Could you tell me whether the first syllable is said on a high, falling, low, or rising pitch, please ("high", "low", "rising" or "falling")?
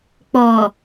low